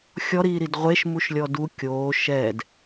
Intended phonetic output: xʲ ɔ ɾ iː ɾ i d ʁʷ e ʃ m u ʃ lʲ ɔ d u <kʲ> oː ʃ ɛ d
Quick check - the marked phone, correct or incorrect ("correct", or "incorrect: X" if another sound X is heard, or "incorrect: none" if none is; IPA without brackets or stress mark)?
correct